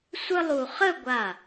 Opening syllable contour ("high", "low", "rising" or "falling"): high